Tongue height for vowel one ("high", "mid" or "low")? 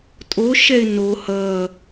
mid